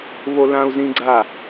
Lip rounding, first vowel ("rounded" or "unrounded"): rounded